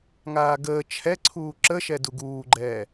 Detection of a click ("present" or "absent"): present